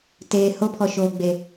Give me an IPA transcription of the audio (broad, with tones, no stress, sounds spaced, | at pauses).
t eː˨ h o˦ pʰ ɔ˨ ʃ oː˨ ɡ͡b e˨